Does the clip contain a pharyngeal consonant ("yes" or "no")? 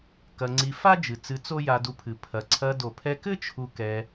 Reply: no